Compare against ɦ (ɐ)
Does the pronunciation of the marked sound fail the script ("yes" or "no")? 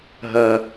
no